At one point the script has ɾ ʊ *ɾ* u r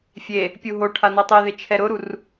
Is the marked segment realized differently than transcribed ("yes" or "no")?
no